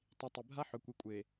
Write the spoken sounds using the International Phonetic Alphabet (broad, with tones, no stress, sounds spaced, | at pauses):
tˤ i˨ tˤ e˨ bʱ a˦ ħ ɵ˨ kʷ i˨ kʷʼ e˨